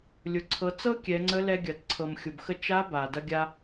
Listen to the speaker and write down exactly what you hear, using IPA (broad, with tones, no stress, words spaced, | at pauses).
lʲʊ˩ǀʰɤ˩˧t͡sɤ˥ kʲɛ˩˧ŋ͡ǀə˧˥lɛ˧ ɡʲɐ˩tǀʰɤ˩m xʲʊ˩bxə˧ t͡ʃa˧˥ ba˩dɐ˧ɡʲa˧